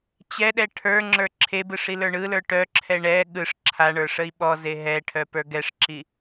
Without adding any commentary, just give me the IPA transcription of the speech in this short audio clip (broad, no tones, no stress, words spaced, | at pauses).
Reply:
t͡ɕɛɗɛ ʈʰə˞ŋ͡ǁə˞ ǁʰebɯ ʂilə˞ɳɯlə˞ ʈœǁʰɛ ɳɛ ɠɯʂ ǁʰaɳə˞ ʂəi̯ɓɔze ɦɛʈʰœ pə˞ɡɛʂǁi